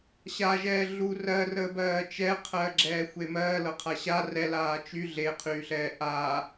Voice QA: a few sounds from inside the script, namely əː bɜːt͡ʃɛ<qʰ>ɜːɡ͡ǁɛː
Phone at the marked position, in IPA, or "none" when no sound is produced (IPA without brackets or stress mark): qʰ